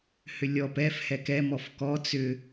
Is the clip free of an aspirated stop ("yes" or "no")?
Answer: yes